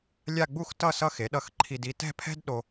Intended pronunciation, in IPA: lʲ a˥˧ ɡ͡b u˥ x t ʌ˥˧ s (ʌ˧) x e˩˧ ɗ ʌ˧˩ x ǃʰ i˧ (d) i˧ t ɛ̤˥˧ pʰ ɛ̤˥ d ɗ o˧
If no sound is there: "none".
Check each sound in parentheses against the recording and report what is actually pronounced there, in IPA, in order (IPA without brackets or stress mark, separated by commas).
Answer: ʌ˧, d